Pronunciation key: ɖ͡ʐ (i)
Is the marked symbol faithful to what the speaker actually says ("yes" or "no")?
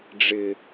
no